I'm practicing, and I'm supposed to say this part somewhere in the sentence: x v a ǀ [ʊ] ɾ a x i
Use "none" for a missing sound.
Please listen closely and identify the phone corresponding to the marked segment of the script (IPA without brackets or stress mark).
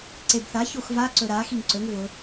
ɵ